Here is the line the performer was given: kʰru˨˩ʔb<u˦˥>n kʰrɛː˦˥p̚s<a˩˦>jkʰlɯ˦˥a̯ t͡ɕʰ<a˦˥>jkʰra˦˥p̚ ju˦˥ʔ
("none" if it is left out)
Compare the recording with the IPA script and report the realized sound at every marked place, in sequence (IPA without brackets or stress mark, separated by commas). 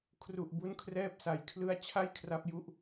u˦˥, a˩˦, a˥˩